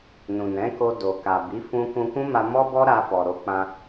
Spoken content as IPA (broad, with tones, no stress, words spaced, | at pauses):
nũ˨nɛ̃˨˦ko˧ do˨ka˨bi˨˦ fũ˧kũ˧kũ˦ma˧ mɔ˦bɔ˦ɾa˧fɔ˨ ɾo˨˦k͡pã˧